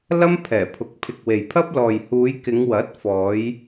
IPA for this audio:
lɐ˥mpʰɛː˨˩pʰʊ˨k̚ pʰɪ˨k̚we˨jpʰɐ˥p̚lɔː˨j huː˨˧jkɪ˨˧ŋ wɐ˨˥t̚ fɔː˨˧j

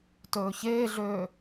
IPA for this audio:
tɵːçeːɮøː

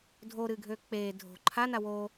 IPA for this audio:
dʱoɾɨːɡʱøː k͡peː dʱo̤ ǃʰana wo

